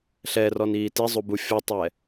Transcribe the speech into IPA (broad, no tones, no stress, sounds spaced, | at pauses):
ɬ ɛ r ɔ n iː t i zˤ u b u fʲ ɔ tˤ ɛ